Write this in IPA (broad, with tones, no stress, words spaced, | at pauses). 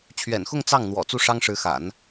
t͡ɕʰɥɛ̰˨˩nxʊ˥˧ŋ t͡sɑ˥˩ŋn̪wɔ̰˨˩ t͡su˥˩ʂɑ˥ŋʂɻ̩˧˥xa̰˨˩˦n